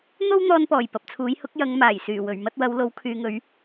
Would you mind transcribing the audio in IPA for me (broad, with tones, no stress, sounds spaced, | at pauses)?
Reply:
n̪ o˥ w n̪ ɔː˧ n p ɔː˨˩ j p ɐ˨ p̚ t͡sʰ uː˨˥ j h ʊ˨˥ k̚ j ɐ˨˧ ŋ m aː˨˩ j s yː˨˩ w ɵ˨˩ ɥ m ɐ˥ t̚ w ɐ˨˥ w l o˨˥ w kʰ yː˨˧ ŋ ɵ˨˥ ɥ